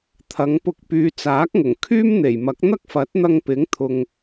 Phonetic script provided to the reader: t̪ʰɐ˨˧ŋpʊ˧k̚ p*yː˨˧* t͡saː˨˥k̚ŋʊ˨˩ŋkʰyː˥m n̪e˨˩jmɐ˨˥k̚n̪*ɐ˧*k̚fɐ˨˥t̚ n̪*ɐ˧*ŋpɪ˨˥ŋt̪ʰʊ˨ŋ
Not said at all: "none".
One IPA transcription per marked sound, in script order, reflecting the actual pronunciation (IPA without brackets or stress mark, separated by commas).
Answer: yː˨˧, ɐ˥, ɐ˧